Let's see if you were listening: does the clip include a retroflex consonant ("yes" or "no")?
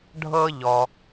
yes